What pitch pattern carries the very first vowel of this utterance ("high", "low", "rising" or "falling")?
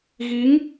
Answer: rising